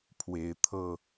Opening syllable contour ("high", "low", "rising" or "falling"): rising